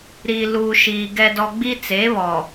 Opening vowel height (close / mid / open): close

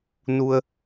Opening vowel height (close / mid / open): close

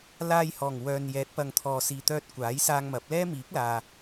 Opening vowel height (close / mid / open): open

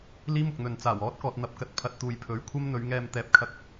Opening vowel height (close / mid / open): close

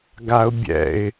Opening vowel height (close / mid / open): open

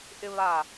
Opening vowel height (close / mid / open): close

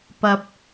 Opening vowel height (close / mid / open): open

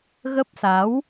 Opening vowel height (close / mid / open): mid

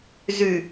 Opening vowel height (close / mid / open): close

